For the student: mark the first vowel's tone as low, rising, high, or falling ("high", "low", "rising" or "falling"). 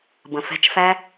low